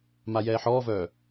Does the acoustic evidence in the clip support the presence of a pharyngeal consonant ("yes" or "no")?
yes